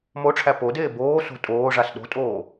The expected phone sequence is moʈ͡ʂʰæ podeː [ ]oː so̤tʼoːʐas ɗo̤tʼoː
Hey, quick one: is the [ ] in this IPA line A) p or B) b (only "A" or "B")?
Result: B